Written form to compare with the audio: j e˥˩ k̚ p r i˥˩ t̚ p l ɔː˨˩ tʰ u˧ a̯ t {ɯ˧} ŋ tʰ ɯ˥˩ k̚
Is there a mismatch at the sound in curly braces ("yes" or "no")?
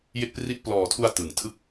yes